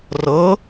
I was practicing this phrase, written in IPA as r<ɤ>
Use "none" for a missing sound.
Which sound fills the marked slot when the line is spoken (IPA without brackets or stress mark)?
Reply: ɤ